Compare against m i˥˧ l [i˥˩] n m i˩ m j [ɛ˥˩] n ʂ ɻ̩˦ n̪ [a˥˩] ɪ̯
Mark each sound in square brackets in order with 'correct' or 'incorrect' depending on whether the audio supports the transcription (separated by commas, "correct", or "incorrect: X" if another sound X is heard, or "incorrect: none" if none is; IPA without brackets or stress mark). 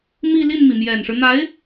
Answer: correct, incorrect: ɛ˨˩, incorrect: a˧˥